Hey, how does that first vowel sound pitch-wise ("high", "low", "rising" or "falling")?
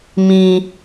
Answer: high